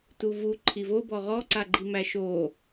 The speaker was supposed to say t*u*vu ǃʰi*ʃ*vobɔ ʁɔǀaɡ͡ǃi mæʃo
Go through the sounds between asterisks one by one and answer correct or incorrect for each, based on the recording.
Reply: correct, incorrect: none

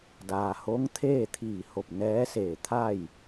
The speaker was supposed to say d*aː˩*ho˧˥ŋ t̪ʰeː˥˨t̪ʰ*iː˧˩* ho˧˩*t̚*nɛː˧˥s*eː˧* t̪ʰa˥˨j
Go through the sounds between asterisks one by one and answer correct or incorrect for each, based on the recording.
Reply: correct, correct, incorrect: p̚, incorrect: eː˧˩

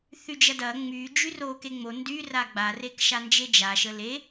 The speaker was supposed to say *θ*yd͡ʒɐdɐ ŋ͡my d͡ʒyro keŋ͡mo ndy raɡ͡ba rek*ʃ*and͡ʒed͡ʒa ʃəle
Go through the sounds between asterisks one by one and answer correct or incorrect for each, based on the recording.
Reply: correct, correct

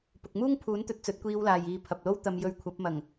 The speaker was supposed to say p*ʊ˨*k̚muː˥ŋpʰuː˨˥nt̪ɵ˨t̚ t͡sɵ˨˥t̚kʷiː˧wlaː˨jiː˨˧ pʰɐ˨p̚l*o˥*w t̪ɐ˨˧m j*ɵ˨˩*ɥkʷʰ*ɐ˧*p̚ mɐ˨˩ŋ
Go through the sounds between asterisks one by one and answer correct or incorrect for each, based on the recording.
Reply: correct, correct, incorrect: ɵ˧, incorrect: ɐ˨˥

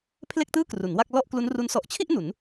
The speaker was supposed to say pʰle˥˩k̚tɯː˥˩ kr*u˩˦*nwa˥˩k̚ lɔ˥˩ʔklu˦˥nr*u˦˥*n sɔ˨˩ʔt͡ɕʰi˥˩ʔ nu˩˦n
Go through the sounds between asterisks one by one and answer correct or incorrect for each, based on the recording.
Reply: correct, correct

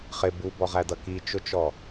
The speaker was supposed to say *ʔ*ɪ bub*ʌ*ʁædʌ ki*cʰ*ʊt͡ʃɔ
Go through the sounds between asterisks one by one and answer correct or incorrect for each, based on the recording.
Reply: incorrect: χ, incorrect: ɔ, incorrect: t͡ʃ

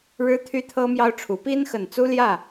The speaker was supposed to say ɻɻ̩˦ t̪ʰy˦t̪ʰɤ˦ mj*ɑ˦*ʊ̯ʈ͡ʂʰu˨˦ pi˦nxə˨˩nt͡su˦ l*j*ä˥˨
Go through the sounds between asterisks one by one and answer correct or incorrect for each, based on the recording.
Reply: correct, correct

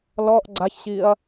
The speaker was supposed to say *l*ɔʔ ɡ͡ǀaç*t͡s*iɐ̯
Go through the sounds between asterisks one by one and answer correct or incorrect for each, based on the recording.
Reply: correct, incorrect: ɕ

